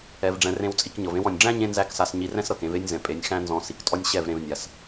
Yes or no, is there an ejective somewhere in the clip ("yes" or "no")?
yes